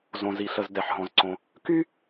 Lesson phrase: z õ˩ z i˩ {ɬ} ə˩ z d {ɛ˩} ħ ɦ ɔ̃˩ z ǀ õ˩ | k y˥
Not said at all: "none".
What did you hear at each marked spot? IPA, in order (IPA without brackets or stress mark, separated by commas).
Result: ɬ, ɛ˩